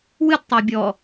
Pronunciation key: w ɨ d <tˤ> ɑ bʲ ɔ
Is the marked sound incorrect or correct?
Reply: correct